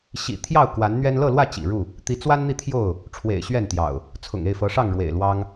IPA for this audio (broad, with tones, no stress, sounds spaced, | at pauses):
ɕ ḭ˨˩ t̪ʰ j ɑ˥˨ ʊ̯ k w a˨˦ n n̪ ɥ ɛ˦ n l ɤ˥˨ l w ä˥˨ t͡ɕ ḭ˨˩ ɻ u˥˨ | t̪ i˨˦ t͡s w a˦ n n̪ i˥˨ t̪ʰ j o˥˨ ʊ̯ | ʈ͡ʂʰ w ḛ˨˩ ɪ̯ ɕ ɥ ɛ˥˨ n t̪ j ɑ̰˨˩ ʊ̯ | t͡sʰ ʊ̰˨˩ ŋ e˥˨ ɪ̯ f ɤ˨˦ ʂ ɑ˥˨ ŋ ɻ w ḛ˨˩ ɪ̯ l w ɑ˦ ŋ